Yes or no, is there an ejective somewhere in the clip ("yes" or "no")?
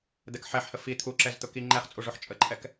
yes